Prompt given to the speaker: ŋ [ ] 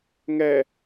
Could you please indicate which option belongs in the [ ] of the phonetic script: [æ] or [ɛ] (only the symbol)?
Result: ɛ